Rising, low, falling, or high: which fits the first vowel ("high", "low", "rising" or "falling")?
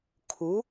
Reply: rising